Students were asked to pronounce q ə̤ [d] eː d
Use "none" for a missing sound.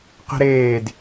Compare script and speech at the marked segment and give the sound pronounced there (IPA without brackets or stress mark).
ɾ